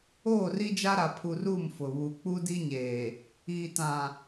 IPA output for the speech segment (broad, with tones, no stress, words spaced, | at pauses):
oː˦˨ri˦d͡ʒa˦ ɾa˨pʰu˨r u˦˨mfʊ˨βu˨ k͡pu˦di˦ɲeː˨ | iː˨tã˨